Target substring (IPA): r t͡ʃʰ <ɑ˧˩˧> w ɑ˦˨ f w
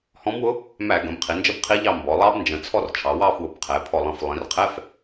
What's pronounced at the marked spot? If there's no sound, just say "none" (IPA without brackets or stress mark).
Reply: ɑ˩˧